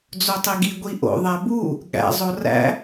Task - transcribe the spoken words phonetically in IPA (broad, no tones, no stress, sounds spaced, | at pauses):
d͡z o tˤ i ɡ i ɡʷ i ʔ o̰ ðˤ æ b u | ɠ æ̰ zˤ o r æ̰